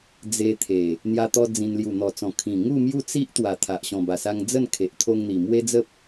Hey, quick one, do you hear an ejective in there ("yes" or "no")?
no